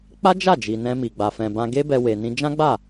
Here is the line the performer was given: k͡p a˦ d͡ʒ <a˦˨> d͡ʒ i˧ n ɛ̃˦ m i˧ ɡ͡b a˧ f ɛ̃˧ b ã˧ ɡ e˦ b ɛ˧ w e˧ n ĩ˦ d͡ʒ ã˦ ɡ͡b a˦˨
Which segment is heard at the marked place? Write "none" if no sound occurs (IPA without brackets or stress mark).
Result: a˦˨